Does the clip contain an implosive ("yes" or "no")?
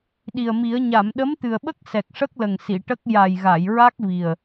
yes